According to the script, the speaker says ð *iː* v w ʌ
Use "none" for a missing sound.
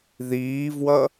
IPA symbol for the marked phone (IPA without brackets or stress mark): iː